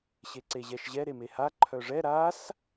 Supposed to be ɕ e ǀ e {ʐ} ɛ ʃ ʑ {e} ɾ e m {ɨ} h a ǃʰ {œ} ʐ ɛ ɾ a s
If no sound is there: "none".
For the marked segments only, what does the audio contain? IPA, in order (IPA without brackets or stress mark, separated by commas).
ʑ, ɛ, e, œ